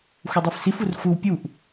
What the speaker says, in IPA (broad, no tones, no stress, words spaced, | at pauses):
xʷɛdˤɛfsifur xʷɯw pʲuʔ